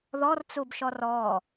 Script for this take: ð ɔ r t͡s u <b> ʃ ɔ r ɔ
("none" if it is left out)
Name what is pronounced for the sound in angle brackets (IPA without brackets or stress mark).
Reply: b